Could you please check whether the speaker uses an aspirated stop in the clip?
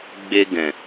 no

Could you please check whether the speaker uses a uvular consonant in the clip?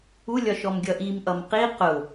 yes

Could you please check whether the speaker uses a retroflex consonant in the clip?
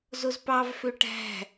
yes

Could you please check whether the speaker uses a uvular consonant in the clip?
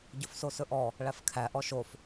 no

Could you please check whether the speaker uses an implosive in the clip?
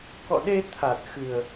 yes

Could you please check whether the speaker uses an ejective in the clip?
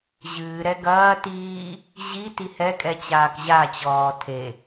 yes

